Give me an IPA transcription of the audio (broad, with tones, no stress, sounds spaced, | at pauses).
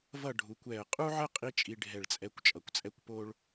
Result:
v ʌ˥˧ ɖʱ u˩˧ kʷ ɛ˧˩ ə̯ qʼ u˥ ʕ ə˥ qʼ i˥ t͡ʃʼ i˧ ɖʱ ɛ˧˩ ɭ t͡sʼ ɛ˧ kʷ t͡ʃʼ ʌ˩˧ kʷ t͡sʼ ɛ˥ kʷ p o˥ ɭ